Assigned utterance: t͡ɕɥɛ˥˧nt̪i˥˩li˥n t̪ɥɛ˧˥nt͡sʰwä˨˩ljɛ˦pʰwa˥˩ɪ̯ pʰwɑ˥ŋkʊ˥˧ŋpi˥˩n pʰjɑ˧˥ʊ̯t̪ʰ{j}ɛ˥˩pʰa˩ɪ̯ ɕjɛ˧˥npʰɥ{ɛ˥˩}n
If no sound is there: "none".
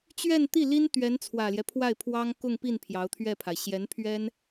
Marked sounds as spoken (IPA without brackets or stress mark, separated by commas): ɥ, ɛ˥